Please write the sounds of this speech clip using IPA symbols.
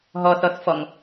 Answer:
ɦ ɔ θ ɔ θ f ɔ ŋ

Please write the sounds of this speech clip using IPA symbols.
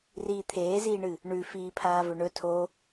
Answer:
r iː t̪ʰ eː z iː ɳ ɨ | ɳ ʉ f iː pʰ aː v ɵ ɳ ɵ tʰ o

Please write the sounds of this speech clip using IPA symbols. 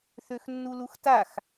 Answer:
θ ø x nː u l u x t a x

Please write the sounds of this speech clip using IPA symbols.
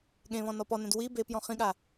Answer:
ɠ ẽ β ɔ̃ n ɔ p ɔ n ɛ̃ d w i b e p j ɔ̃ χ ĩ ɠ a

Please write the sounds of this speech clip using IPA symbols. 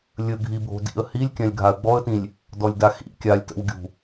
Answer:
lʲ ə ɡʱ i bʱ o̤ d ḭ ə̯ h i lʲ kʲ ã lʲ ɡʱ a ə̯ ɡ͡b ɔ ə̯ t ĩ lʲ | d ɔ lʲ d a x ḭ kʲ a lʲ t ə̰ w ɡʲ ṳ

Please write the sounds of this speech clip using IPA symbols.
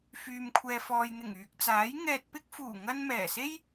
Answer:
f yː˨ m kʷʰ ɛː˨ f ɔː˨ j n̪ ɪ˨˩ ŋ yː˨ k̚ t͡s aː˨˥ j ŋ ɛː˧ t̚ p ɪ˥ k̚ f uː˨˩ ŋ ɐ˧ n m ɛː˨˩ s e˥ j

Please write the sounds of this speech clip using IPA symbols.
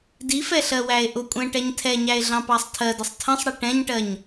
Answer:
d i f ɛ ɬ ɜ w æ e̯ ʔ ʊ kʷʼ ɛ̃ ʈ ɛ ɲ tʰ ɛ ɲ æ e̯ ɮ ɑ̃ p ɑ sˤ tʰ ɜ d ə sˤ tʰ ə̃ sˤ ɽ ɛ ʈ ɛ̃ ɲ ʈ ɜ ɲ

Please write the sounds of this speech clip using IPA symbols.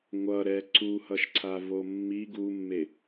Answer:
ŋʷ ʌ ɾ ɛ ǀ u h ʌ ʃ ǀʰ a v o mː i ɡ u mː e

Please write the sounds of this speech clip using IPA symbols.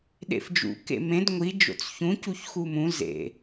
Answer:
ɗ ḛ f d͡ʒ ṵ k ḛ m ẽ d ŋʷ i d͡ʒ o̰ t͡s ç ũ c u ç x u m ũ z ḛ

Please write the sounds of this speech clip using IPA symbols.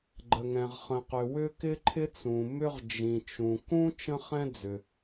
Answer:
ɡ͡ǃ ə˩ ŋ ɛ̃˩ ʁ χ ə̃˩ q ʏ˩ w ʏ˥ k ɪ˥ ǃʰ ɪ˥ t͡s ũ˩ m ʏ˥ ʁ d͡ʒ ĩ˩ t͡ʃ ũ˩ k ũ˥ t͡ʃ ə̃˥ χ ɛ̃˥ d͡z ʏ˩

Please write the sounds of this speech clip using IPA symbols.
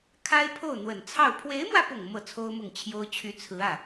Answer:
kʰ a˥ ɪ̯ pʰ o˥˩ ʊ̯ n̪ w ə˨˩ n t͡sʰ ɑ˥˩ ʊ̯ pʰ w e˧˥ ɪ̯ m w ä˧ p ʊ˨˩ ŋ m ɤ˥˩ t͡sʰ o˥ ʊ̯ m ʊ˥˩ ŋ t͡ɕʰ j o˥ ʊ̯ t͡ɕʰ y˧˥ t͡sʰ ɹ̩˧˥ ä˥˩

